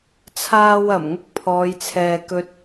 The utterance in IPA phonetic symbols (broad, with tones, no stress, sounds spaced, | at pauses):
t͡sʰ aː˥ w ɐ˨˩ m ŋ ʊ˥ k̚ pʰ ɔː˨˧ j t͡sʰ ɛː˨ k ɵ˧ t̚